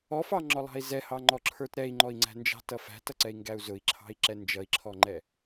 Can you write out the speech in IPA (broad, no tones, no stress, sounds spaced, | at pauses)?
ɔ f ɑ ŋ͡ǁ ɔ lˠ ɑ̤ i̯ z ɛ h ɑ ŋ͡ǃ ɔ ǁʰ ə˞ t ɾ ɛ i̯ ŋ͡ǃ ɔ i̯ ŋ͡ǀ æ̤ n d͡ʒ ɑ̤ t ʌ f æ̤ t ʌ ǀ ɛ i̯ ŋ ɡ æ u̯ z ʊ i̯ ǁʰ ɑ̤ i̯ ǁ ɛ n d͡ʒ ʌ i̯ ǁʰ ɔ ŋ͡ǃ ɛ